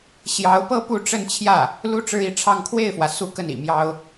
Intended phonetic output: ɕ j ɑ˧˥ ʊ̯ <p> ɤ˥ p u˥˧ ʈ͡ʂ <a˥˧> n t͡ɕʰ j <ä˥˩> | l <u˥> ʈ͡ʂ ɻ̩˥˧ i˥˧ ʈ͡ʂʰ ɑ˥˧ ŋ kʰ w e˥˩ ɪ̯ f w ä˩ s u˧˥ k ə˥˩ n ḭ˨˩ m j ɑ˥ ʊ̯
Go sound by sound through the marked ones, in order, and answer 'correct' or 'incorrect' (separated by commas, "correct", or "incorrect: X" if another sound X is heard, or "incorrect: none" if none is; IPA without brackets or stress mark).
correct, incorrect: ə˥˧, correct, correct